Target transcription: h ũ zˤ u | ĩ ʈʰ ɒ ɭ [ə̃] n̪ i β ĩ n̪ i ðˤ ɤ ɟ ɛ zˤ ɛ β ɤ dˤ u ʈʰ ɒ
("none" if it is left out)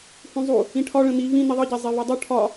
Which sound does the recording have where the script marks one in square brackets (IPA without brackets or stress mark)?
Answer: ə̃